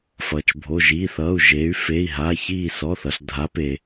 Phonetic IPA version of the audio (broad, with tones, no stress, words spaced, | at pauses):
fʌː˩t͡ʃbʱo˩˧˩ ʒiː˩˧˩θ ʌː˩˧˩u̯ʒe˩˧y̯ feː˩˧˩i̯ɦaː˩˧˩ çiː˧˩sɔ˩˧˩θʌ˩ɬ dʱa˩˧peː˩